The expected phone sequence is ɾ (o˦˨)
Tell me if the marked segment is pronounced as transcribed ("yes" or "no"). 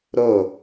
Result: yes